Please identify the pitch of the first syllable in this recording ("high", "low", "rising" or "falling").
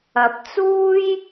rising